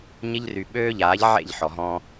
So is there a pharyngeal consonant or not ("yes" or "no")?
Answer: yes